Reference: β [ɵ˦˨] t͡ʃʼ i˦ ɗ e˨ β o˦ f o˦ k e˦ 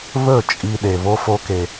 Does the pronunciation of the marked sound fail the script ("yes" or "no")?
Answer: no